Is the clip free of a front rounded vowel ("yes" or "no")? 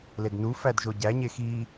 yes